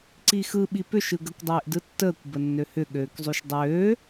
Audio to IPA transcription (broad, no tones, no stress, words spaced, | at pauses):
ǀixɯ ɓipʏʃ ɯɡəkʷ dˤeːʔdɯtːəːkʷ bənːøhʏ ɠøːkzˤyʃdˤøː